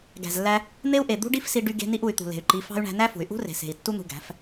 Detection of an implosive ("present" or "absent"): absent